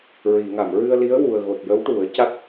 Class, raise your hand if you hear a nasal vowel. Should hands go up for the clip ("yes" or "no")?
no